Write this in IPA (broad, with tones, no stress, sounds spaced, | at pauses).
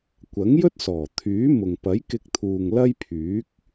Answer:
kʷ ɐ˨˥ ŋ j ɵ˥ t̚ s ɔː˨˩ t̪ʰ yː˨˥ m ʊ˨ ŋ p ɐ˨˥ j k ɪ˧ k̚ t̪ʰ uː˨ ŋ l ɐ˥ j pʰ yː˨˥ k̚